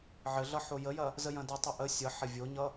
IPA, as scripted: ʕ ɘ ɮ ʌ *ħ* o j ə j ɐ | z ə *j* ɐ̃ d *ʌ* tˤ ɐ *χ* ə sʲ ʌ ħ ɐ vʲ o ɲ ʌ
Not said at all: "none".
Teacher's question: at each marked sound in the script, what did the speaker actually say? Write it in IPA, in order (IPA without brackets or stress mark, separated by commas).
ħ, j, ʌ, ʔ